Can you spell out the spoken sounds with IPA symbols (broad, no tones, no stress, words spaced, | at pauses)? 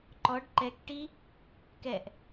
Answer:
ǃɔɖ ǃɛk ʈi | kɛʔ